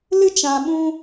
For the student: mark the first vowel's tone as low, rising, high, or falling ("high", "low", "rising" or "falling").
high